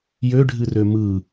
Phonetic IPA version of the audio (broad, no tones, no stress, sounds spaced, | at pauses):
j ø ɖʱ ɨ r ø m ɯ